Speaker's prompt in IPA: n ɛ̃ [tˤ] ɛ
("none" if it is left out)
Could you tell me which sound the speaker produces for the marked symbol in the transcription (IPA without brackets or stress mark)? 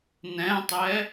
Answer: tˤ